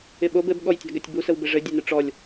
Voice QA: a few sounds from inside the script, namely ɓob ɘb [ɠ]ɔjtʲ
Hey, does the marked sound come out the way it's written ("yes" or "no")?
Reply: yes